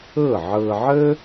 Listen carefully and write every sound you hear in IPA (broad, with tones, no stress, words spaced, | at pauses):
ɤ˥˩ʕɤ˧ʕə˥